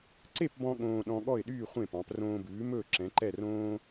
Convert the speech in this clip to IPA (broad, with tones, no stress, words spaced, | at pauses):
ǀe˥˩pbɔ̃˧ ɠõː˧ ɗɔ̃˧ɠɔ˥˩ɪ̯ɗyː˥˩ χʷẽ˥˩pɑ̃˩˥p rõː˧bʉː˩˥mɵː˥˩ ǁɛ̃˩˥ǃɛ˥˩r õː˥